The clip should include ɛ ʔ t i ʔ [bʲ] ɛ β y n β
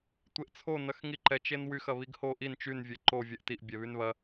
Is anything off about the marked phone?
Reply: no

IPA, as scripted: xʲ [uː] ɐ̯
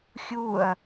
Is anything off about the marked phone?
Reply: no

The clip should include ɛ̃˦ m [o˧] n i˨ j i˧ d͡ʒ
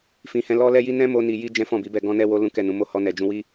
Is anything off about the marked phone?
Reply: no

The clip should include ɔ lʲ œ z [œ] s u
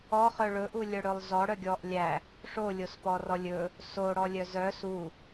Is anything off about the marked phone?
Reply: no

